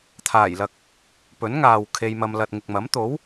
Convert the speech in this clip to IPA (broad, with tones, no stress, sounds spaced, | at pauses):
t̪ʰ aː˨˩ j l ɐ˨ k̚ | p ɵ˨˥ n ŋ aː˨ w kʰ e˧ j m ɐ˧ m l ɐ˨ t̚ ŋ ɪ˨ k̚ m ɐ˨˥ m t̪ o˨˥ w